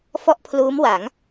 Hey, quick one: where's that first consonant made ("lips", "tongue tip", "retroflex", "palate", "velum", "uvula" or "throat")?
lips